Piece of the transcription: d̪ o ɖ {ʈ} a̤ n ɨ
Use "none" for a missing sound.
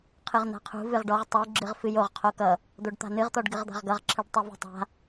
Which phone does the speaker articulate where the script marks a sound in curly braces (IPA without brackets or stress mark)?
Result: t̪